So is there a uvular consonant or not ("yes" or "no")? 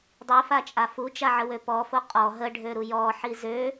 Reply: yes